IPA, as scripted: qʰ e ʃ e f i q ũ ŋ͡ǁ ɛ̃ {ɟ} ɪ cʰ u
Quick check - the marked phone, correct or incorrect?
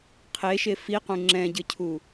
correct